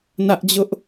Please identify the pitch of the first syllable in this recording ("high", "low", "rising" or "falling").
high